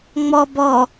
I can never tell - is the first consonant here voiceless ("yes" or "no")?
no